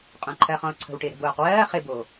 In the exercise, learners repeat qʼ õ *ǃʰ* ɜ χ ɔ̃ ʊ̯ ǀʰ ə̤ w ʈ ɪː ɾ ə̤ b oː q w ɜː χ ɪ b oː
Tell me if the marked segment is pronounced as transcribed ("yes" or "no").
yes